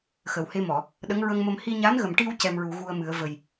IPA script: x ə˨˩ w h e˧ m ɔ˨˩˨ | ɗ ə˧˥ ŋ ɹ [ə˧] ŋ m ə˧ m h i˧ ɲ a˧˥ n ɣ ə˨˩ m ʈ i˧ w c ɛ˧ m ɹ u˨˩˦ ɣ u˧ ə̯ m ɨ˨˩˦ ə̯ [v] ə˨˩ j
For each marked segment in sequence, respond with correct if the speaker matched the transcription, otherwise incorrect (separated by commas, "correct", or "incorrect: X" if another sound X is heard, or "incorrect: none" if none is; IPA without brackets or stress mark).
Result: correct, correct